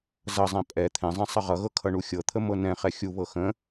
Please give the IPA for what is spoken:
zʌzˤɛ̃ pʼɛ t̪ʰɛ̃zˤɛ̃ sˤʌʁʌɣɤ kʰʌɳuxʲɤt̪ʰə mɤnɛ̃χɛ xʲuβɤ xə̃

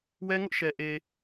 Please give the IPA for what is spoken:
wɛ˦ŋʊ˦ʔʃɛ˨ʔe˨

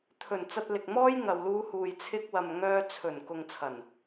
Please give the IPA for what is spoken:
t̪ʰɵ˨˩n t͡sɐ˧t̚lɪ˨k̚ mɔː˥j ŋɐ˨wluː˧huː˨j t͡sʰɪ˧k̚ wɐ˨mŋœː˧t͡sʰɵ˨˩n kʊ˨ŋt͡sʰɐ˨˩n

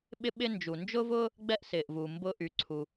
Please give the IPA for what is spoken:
ɓɪ˥ɓɪ˥ nd͡ʒu˩nd͡ʒʊː˥vʊː˥ | ɡ͡bɛ˥ʔsɪː˩ʔvu˩ mbʊː˥ʔy˩ǀʰu˩

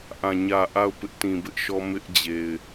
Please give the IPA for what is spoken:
ʔã˨ ɲä˨ ʔa˦˨ʊ̯pɪ˦ʔtĩ˨ bɪ˦ʔʃɔ˦ mɪ˦ʔ d͡ʑe˨ɪ̯

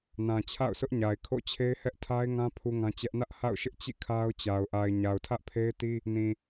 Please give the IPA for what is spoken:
nã˨t͡ɕʰa̰˦˨ʊ̯sʊ˦ʔ ɲa˨ɪ̯kʰo̰˦˨t͡ɕʰe˦ɪ̯ hɛ˦ʔtʰa˦ɪ̯ŋã˦ pʰu˦ŋã˦t͡ɕɛ˦ʔ nä˦ʔha̰˦˨ʊ̯ʃɪ˦ʔ t͡ɕḭ˦˨ kʰa˦ʊ̯t͡ɕa˨ʊ̯ ʔa˨ɪ̯ ɲa˨ʊ̯tʰä˦ʔpʰe˦ɪ̯ti˦ | nĩ˨

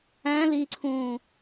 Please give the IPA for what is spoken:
æ̃ liǀʰũː

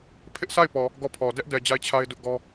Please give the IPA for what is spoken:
pʰɪ˦ʔsʰa˦˨ɪ̯ pɔ˨ | ɡɔ˦˨pʰɔ˨ dɛ˦ʔdɛ˨ d͡ʑa˦˨ɪ̯t͡ɕʰa˦ɪ̯ dʊ˦ʔɡɔ˦

